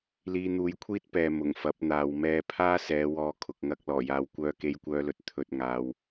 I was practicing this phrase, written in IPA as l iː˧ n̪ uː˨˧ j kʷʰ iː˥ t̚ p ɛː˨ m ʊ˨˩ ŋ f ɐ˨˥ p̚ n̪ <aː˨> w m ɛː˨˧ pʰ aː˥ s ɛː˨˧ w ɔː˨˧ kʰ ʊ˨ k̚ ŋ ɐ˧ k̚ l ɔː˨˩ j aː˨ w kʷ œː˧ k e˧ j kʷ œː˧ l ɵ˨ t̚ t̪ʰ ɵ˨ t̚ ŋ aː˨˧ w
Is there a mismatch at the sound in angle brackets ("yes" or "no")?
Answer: no